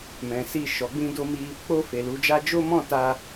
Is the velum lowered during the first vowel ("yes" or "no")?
yes